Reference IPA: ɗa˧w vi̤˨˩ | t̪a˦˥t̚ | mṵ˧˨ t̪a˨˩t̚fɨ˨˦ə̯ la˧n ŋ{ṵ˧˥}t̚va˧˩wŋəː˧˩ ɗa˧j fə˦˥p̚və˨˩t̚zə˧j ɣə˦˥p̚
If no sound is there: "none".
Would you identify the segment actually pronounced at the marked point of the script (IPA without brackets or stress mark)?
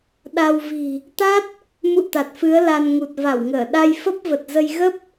u˨˩